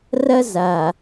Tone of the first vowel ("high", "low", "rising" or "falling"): high